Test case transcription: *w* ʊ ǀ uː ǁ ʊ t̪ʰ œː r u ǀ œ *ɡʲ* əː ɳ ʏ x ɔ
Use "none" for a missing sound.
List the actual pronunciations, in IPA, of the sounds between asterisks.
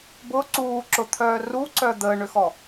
b, d̪

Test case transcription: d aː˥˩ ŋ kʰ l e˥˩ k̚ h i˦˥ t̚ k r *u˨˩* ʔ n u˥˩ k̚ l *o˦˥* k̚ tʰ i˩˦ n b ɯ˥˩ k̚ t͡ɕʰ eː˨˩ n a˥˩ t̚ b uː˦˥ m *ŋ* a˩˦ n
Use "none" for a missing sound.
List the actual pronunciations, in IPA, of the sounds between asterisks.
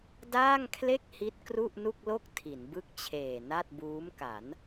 u˥˩, o˥˩, k

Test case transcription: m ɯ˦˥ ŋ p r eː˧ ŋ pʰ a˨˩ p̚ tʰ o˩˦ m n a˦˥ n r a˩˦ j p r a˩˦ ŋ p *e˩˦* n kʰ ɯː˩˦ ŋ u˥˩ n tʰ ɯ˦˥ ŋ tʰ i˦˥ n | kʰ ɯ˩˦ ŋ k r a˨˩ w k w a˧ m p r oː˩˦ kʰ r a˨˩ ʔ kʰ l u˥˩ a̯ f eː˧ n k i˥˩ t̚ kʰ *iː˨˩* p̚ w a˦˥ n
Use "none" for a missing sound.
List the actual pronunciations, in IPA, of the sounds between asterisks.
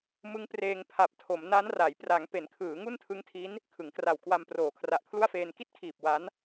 e˩˦, iː˨˩

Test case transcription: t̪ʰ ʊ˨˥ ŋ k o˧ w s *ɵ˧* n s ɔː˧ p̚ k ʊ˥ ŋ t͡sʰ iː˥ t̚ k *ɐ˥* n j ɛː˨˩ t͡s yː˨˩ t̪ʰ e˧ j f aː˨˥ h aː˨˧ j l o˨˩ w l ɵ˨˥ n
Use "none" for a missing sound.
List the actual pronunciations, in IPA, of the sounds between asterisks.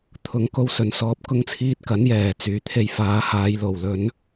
ɵ˨, ɐ˨˥

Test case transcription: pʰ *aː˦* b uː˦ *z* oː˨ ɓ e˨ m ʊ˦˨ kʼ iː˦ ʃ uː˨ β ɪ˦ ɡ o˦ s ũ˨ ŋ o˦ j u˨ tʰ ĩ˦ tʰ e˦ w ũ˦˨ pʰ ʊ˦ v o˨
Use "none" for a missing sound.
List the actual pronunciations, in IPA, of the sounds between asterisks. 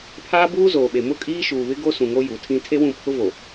aː˦, z

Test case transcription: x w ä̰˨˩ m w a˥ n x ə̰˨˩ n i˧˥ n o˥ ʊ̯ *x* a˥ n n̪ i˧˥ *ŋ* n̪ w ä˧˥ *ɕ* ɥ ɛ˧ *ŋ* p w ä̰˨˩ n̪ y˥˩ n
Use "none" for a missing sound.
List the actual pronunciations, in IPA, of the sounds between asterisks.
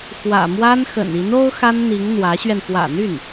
x, ŋ, ɕ, n

